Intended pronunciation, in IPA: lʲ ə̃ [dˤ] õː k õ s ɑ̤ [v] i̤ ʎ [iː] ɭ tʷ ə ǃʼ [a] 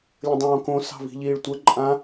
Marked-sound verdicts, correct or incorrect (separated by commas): correct, correct, correct, incorrect